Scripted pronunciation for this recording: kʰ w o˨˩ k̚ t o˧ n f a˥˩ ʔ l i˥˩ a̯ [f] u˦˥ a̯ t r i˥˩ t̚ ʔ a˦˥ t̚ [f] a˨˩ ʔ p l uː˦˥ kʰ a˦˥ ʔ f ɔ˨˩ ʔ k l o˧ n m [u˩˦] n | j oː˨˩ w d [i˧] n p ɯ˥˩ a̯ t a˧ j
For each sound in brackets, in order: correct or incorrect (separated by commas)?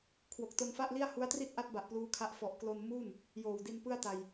incorrect, incorrect, incorrect, correct